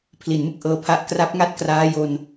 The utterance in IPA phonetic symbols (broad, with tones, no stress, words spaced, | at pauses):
pʰli˨˩nmɯ˥˩k̚ʔɤː˧pʰa˦˥ʔ kra˦˥p̚ŋa˥˩t̚ kraː˦˥jo˧n